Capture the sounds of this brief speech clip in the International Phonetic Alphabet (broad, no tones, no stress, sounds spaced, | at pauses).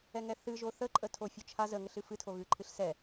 ɛ ŋ ɛ θ ɨ ʒ o θ ə ǃʼ ə tʰ o fʲ o t͡ʃʰ a z ə ŋ ə ɬ ɨ f ɨ tʰ o ɣ ɨ ǃʰ ɨ ɬ s ɛ